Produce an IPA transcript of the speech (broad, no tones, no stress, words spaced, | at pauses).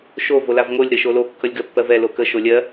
ʃo volavŋolʲ ɾəʃolo kːʌlʲɡɜpːɜvɛ lokə ʃolʲɜ